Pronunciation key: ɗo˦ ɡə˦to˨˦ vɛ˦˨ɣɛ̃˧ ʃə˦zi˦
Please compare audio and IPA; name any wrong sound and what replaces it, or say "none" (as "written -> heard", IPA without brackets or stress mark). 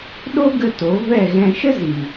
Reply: i˦ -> i˨